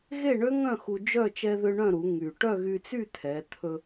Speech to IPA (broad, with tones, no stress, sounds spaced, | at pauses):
ɣ e˥˨ ɳ ø˦˥ ŋ œ̃˥˨ x u˧ d͡ʒ œ˥˨ t͡ʃ ɛ˧ ð ø˧ ɳ œ̃˥˨ ɾ u˩˧ ŋ y˨˩ ʈ œ˥˨ ɣ y˧ t͡s y˥˨ t̪ʰ ɛ˩˧ t̪ʰ ɵ˧